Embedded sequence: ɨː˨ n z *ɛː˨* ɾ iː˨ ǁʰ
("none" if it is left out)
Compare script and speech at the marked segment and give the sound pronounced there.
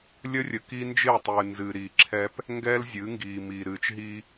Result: ɨː˨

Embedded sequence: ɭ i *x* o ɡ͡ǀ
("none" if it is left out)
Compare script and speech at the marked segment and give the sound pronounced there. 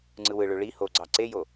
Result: h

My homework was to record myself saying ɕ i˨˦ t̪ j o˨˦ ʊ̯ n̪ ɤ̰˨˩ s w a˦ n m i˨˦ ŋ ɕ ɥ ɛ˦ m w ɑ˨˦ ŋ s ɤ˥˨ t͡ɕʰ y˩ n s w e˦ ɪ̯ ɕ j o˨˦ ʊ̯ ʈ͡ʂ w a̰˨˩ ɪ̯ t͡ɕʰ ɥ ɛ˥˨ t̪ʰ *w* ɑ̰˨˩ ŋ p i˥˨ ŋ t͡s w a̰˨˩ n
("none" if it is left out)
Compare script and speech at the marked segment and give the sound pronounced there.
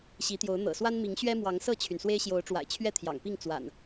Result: j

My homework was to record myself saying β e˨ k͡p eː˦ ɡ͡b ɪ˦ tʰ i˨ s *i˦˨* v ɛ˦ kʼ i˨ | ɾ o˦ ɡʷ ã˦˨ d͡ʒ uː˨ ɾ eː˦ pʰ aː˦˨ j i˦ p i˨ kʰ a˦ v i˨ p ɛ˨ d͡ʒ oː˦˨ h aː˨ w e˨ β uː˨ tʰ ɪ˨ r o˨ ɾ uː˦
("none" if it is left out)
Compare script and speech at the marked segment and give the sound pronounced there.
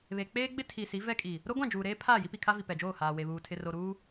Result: i˨˦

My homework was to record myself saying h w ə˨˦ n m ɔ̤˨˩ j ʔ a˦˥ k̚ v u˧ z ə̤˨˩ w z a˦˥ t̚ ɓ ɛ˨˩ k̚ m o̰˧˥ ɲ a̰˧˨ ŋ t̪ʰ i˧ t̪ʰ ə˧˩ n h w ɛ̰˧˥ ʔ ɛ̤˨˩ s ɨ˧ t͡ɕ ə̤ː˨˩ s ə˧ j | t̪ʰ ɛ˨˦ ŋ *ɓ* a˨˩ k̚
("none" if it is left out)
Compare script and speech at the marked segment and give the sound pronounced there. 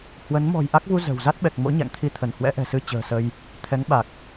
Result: ɓ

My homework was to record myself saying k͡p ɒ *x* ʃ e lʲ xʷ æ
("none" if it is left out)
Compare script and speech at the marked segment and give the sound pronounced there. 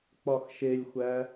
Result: x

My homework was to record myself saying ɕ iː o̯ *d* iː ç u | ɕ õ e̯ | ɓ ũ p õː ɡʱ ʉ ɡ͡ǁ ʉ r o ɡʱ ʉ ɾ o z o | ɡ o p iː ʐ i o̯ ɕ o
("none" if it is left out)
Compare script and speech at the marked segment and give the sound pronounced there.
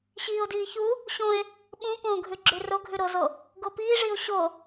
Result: d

